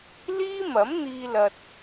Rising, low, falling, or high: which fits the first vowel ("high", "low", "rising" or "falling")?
high